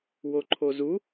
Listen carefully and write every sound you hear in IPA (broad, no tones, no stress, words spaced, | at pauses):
woǃʰozu